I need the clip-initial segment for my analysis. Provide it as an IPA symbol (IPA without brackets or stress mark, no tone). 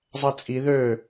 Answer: zˤ